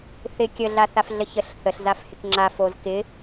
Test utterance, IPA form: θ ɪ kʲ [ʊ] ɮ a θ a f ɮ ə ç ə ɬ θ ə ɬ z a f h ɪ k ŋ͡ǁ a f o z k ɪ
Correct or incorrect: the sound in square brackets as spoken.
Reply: incorrect: ə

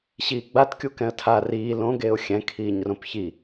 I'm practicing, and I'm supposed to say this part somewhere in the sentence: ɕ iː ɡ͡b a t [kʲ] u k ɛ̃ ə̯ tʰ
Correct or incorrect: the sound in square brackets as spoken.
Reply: correct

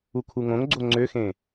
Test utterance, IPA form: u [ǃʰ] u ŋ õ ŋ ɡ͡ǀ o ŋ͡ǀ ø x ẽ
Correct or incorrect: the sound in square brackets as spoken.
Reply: incorrect: kʰ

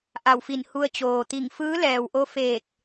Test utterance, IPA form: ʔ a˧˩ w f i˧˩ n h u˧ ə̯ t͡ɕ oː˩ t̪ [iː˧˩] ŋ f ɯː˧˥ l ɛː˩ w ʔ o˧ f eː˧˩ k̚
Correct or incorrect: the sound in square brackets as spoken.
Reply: incorrect: i˧˩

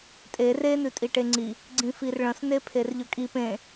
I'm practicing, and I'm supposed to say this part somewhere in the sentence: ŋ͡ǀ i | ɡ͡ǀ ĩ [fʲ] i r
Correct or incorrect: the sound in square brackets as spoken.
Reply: incorrect: f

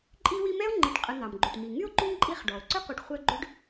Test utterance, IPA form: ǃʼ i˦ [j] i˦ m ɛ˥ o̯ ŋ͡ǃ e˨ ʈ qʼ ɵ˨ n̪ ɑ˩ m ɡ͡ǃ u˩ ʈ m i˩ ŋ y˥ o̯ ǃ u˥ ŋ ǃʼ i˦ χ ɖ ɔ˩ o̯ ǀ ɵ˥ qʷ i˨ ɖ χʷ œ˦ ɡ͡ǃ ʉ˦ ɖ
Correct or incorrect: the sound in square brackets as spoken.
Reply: incorrect: w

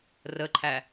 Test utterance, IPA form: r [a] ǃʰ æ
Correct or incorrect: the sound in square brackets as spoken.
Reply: incorrect: ə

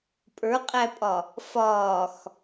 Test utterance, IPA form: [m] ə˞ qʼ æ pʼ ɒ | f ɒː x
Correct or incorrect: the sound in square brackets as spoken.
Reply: incorrect: pʼ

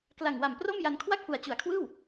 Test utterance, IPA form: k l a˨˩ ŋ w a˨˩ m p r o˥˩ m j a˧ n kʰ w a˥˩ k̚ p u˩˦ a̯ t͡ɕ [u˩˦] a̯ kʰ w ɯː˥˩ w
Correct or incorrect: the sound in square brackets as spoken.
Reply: correct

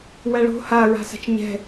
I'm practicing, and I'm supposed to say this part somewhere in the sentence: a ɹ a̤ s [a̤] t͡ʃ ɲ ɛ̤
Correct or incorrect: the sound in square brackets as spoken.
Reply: correct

